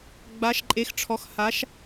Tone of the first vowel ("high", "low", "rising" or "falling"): rising